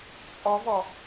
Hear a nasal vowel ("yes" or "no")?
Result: no